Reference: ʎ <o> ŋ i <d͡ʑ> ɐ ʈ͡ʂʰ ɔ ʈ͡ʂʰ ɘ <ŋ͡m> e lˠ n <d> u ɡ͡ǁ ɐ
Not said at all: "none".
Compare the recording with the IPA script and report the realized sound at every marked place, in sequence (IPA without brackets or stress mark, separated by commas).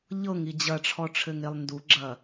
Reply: ɤ, d͡ʑ, ŋ, d